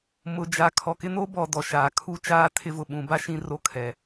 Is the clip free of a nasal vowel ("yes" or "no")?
no